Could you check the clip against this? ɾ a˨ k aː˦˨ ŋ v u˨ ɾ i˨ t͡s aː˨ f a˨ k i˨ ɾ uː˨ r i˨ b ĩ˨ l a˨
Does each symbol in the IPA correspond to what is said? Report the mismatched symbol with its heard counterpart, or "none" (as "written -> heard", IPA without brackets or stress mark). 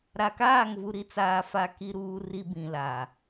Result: none